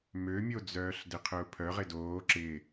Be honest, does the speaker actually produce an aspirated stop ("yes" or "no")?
yes